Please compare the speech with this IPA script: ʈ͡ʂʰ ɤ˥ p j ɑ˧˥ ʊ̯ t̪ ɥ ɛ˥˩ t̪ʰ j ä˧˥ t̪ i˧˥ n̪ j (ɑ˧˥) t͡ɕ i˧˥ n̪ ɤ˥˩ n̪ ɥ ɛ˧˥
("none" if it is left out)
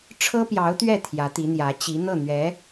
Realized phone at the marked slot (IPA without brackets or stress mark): ä˧˥